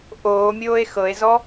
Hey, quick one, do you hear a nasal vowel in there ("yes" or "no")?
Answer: no